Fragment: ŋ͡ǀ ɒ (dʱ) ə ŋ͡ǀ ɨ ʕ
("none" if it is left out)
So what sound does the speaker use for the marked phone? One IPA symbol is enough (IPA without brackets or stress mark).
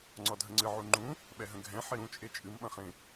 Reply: dʱ